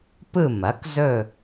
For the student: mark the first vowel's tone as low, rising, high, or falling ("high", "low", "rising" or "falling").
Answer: falling